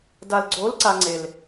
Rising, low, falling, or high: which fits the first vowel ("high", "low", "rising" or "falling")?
low